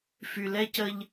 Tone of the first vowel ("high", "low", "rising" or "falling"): low